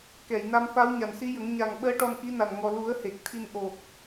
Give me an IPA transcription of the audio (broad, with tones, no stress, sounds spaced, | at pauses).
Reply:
k ɛ˨˩˨ j n a˧ m f a˧˥ w ɲ a˨˩ n s i˧˥ j ə˨˩˦ ŋ ɲ a˨˩ ŋ ɓ əː˧˥ ʈ ɔ˧ n ʔ i˧˥ n a˨˩ n ŋ ɔ˨˩ l u˨˩˦ ə̯ h e˨˩ k̚ t̪ʰ i˧ n ʔ o˨˩ k̚